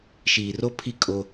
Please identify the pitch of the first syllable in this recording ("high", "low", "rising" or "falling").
low